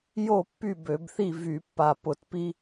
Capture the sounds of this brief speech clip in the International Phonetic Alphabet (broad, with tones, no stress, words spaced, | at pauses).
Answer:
jo˥˨pːy˥˨bø˧˩˧bθi˥˨ vy˧˩˧pːa˧˩ pʊ˧˩˧tpi˦